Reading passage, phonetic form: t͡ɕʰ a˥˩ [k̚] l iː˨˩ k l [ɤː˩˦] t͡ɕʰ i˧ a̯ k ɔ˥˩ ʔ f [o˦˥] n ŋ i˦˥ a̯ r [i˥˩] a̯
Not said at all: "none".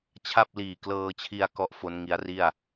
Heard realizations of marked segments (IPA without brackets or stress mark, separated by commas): p̚, ɤː˧, o˦˥, i˥˩